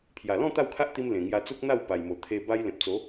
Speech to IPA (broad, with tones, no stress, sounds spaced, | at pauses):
pʰ j a˨˩ l ɔ̃˥˧ t̪ a˥˧ w kʰ a˦ ʔ t̪ i˧ m l ẽ˨˩ ŋ j a˧ t͡s u˦ k̚ n̪ a˥˧ w p a˨˩ j m o˨˩ t̪ʰ e˧ b a˦ j l ẽ˨ p̚ t͡s o˨˦